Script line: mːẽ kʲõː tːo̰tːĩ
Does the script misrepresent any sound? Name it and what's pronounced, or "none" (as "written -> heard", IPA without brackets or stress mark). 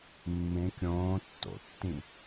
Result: none